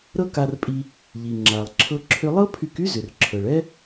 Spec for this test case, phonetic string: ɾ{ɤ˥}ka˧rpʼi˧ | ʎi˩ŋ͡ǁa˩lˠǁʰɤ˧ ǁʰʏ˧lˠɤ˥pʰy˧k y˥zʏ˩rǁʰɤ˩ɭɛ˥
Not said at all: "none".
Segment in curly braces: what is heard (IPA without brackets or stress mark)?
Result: ɤ˥